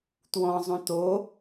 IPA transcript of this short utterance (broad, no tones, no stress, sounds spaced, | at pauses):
t w ɔ̃ zˤ ũ t o